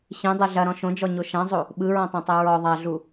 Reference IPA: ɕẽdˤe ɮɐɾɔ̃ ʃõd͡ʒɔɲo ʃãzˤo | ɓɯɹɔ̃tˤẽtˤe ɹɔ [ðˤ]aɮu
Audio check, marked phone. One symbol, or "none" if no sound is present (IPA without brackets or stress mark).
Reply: ðˤ